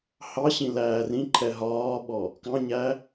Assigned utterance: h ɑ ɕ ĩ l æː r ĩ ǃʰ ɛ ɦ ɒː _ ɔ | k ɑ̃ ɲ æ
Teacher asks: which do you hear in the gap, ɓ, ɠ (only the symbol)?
ɓ